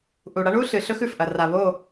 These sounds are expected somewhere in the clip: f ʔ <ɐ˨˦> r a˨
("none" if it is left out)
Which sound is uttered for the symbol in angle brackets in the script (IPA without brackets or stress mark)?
ɐ˨